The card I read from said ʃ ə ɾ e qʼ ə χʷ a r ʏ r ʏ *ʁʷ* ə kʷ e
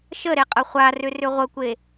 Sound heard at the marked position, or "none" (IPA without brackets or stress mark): ʁʷ